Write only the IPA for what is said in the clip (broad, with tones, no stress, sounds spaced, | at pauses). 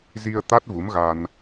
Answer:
z i˧ ə̯ t̪ a˦˥ t̚ v u˨˦ m ɣ a˧ n